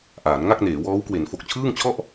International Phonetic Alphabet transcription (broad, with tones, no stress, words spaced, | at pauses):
ʔaː˩˦n ŋa˥˩k̚neː˩˦wɔː˦˥w kwe˩˦n fo˨˩k̚t͡ɕʰɯː˥˩ŋt͡ɕʰɔ˥˩ʔ